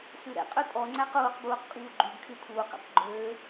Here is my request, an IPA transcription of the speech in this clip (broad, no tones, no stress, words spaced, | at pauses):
sʉɾɛ̰qʼø tʼɔŋ͡ǀæq uːqbuːq kʼuːɡ͡ǃyɡkʰy tʰuːqɛ̰q ɡ͡ǃøː